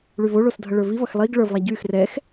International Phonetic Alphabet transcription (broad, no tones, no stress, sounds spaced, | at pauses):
ɭ y v o ɭ o s dʱ ʌ ɭ ə˞ v i v ʌ x lˠ i ɡ ɭ ə˞ v lˠ a ɟ y x r ɛ x